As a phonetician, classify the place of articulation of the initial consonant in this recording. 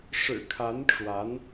retroflex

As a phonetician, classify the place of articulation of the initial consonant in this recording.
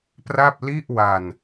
labial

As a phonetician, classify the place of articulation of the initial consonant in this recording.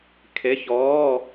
velar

